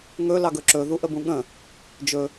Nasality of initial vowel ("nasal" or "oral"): oral